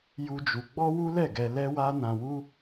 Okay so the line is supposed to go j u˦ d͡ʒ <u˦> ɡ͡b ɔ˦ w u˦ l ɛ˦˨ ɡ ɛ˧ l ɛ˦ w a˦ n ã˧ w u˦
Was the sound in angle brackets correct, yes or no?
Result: no